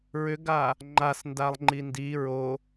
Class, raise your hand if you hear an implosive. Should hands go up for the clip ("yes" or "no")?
no